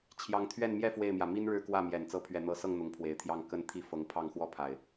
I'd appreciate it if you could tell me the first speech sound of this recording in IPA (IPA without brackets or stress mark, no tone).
t͡ɕʰ